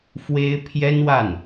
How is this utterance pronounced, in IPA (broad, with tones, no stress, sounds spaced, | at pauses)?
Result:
f w e˥ ɪ̯ pʰ j ɛ˥ n w a˥˩ n